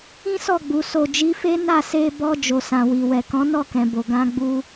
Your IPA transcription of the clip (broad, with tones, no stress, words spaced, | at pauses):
ĩ˦sɔ˦˨ɡ͡bu˨ so˨d͡ʒi˨˦fe˦ na˦˨se˧ bɔ˧ d͡ʒo˨sã˨ wi˨wɛ˨ kɔ̃˨˦nɔ˦˨kɛ̃˨bo˨ ɡã˧ɡ͡bu˧